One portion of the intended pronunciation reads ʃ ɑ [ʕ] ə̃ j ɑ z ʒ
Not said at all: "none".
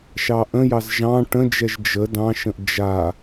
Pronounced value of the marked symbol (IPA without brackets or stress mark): ʔ